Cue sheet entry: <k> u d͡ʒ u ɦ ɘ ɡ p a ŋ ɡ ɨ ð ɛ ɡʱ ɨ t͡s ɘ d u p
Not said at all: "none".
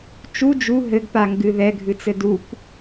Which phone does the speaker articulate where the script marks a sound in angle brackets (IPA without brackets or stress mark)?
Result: t͡ʃ